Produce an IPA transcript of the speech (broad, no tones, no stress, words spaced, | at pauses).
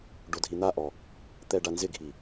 ɖodʱin̪aʔɔ | t̪ɛɖanzɪɡʱi